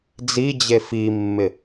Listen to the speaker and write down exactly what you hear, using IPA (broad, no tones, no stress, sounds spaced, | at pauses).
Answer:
d͡z i d͡ʑ e f i mː ɪ